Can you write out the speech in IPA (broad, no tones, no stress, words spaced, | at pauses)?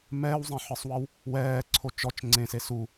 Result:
mɛːwzˤẽħɯsˤwɤw | wɛːǀʰo t͡ʃɔt͡ʃ ŋ͡ǀẽse su